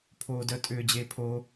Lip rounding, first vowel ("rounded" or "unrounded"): rounded